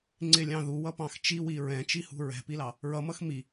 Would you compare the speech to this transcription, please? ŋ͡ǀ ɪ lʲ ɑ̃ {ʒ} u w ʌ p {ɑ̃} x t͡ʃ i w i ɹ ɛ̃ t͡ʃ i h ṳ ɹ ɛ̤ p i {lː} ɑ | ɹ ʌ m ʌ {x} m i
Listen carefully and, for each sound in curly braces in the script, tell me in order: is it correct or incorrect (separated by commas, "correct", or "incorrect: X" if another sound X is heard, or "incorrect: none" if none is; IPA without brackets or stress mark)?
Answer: incorrect: ð, correct, incorrect: l, correct